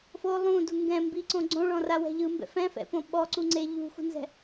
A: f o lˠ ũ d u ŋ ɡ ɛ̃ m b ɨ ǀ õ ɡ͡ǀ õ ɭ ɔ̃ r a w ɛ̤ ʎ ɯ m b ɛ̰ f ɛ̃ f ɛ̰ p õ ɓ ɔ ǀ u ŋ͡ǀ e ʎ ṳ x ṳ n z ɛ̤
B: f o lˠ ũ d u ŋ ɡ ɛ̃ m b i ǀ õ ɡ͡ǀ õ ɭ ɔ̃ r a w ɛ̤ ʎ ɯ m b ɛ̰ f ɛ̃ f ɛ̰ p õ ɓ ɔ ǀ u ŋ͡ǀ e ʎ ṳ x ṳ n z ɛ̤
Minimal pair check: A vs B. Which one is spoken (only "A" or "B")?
B